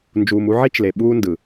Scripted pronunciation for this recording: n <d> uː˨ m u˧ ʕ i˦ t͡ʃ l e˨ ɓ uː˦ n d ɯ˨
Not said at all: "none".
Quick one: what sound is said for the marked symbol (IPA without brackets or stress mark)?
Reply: d͡ʒ